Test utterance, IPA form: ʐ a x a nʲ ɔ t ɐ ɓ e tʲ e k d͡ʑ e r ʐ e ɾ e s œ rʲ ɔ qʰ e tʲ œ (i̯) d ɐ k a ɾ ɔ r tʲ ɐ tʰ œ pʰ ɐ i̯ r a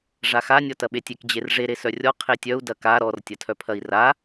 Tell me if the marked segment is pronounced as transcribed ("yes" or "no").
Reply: no